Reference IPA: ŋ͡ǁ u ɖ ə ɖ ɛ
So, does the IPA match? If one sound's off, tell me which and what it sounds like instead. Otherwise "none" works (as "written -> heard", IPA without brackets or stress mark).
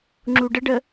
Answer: ɛ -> ə